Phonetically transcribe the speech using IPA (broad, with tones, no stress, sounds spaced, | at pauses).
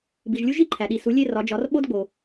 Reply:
b i˩ ʒ lʲ u˦ ʒ i˦˨ ǃʰ æ˩ ɗ i˩ s u˩˧ lʲ e˦˨ r ɒ˩˧ d͡ʒ ɒ˩˧ r ɓ o˦ d ɡ͡b o˩